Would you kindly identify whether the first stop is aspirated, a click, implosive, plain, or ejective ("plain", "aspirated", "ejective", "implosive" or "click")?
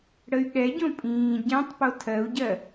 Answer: implosive